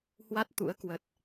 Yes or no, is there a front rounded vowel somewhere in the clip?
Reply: no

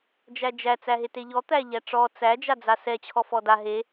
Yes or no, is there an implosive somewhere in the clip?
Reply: no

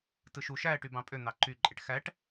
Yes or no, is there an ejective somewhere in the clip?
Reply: yes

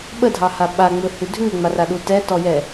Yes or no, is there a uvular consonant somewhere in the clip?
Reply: no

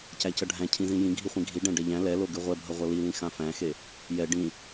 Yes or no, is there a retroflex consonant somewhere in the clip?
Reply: yes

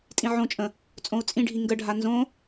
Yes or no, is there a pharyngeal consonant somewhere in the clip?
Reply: yes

